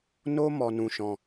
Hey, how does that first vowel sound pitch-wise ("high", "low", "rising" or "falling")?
high